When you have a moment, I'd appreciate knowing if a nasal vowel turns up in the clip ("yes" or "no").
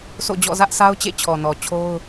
no